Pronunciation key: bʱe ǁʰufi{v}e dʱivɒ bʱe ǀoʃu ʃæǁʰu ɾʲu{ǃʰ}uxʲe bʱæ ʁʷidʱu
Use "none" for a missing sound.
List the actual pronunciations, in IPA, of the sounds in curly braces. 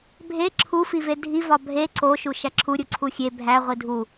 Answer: v, ǀʰ

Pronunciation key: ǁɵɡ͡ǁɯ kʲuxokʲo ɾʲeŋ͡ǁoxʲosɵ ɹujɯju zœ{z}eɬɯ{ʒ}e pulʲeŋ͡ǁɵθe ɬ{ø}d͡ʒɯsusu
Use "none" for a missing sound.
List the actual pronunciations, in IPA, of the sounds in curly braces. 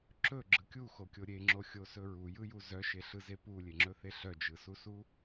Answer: ʃ, z, œ

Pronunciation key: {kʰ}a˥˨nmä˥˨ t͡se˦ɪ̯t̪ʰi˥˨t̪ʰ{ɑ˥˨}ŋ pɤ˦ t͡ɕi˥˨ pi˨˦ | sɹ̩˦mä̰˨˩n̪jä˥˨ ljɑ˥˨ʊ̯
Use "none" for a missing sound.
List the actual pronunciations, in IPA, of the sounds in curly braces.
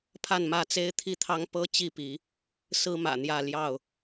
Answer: pʰ, ɑ˦

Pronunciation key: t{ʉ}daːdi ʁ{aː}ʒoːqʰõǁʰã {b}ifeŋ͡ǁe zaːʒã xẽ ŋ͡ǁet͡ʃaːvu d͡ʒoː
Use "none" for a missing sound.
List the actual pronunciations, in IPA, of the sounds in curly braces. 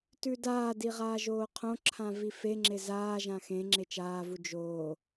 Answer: ʉ, aː, v

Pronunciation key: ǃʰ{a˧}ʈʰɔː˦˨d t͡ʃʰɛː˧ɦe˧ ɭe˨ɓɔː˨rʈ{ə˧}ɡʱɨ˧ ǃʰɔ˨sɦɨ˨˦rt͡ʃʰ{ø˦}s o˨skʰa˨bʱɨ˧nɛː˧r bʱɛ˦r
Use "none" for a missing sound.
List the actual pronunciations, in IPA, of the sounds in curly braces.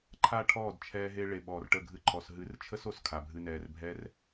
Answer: a˦˨, ə˦˨, ə˦

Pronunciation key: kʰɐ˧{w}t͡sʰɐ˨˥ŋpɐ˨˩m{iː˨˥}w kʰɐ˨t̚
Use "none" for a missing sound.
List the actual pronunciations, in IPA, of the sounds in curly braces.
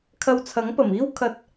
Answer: w, iː˥

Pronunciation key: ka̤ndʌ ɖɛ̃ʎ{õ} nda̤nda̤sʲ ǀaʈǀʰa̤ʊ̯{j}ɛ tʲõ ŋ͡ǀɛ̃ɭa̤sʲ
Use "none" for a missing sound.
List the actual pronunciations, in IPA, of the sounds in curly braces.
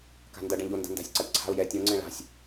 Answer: o, j

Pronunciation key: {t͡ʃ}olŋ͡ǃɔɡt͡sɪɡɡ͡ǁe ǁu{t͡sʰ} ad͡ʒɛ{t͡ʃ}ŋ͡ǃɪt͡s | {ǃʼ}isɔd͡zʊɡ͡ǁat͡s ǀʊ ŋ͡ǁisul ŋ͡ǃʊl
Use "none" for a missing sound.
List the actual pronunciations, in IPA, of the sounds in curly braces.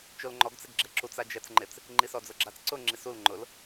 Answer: t͡ʃ, t͡s, t͡s, ŋ͡ǃ

